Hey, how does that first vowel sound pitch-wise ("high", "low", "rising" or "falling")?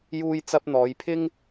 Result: high